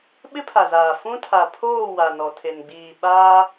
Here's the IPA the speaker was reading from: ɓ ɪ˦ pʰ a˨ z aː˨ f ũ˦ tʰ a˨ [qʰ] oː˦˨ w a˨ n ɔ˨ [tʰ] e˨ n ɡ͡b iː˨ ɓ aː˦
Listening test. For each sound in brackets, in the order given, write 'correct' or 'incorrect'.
incorrect: pʰ, correct

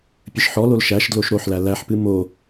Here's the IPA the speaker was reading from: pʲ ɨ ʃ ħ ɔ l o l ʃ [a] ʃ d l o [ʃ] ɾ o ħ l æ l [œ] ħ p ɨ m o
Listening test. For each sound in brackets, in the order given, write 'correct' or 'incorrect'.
incorrect: æ, correct, incorrect: æ

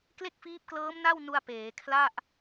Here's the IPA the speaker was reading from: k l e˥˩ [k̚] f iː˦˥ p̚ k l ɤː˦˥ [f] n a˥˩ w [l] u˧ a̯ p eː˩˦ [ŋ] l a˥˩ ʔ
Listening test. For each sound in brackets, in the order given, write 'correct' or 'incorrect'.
correct, incorrect: m, incorrect: n, incorrect: kʰ

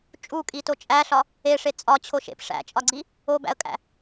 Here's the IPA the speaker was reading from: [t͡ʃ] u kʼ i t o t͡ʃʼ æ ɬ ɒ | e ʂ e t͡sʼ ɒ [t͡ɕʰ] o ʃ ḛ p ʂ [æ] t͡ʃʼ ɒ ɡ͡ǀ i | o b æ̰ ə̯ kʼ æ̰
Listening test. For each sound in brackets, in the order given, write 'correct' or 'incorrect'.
incorrect: t͡ʃʼ, correct, incorrect: æ̰

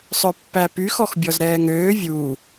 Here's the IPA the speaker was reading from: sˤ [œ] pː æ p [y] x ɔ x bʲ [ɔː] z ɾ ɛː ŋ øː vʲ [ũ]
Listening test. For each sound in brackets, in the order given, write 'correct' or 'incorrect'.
correct, correct, incorrect: ɔ, incorrect: u

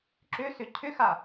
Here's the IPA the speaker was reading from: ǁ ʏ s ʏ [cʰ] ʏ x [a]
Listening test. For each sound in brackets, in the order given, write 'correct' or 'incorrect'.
correct, correct

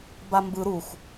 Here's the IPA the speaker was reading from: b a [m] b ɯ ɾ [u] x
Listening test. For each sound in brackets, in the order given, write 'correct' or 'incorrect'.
correct, correct

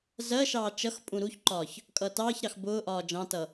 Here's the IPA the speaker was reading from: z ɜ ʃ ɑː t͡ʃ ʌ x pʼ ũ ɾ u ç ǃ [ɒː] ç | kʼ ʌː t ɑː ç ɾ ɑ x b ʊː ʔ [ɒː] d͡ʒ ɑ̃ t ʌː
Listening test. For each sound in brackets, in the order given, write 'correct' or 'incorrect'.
correct, correct

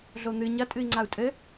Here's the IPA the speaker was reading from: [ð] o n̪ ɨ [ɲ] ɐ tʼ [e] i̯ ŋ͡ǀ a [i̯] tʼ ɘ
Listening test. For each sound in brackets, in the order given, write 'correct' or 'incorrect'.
incorrect: ɮ, correct, incorrect: ɨ, incorrect: u̯

